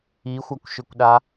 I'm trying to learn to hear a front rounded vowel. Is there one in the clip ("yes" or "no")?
yes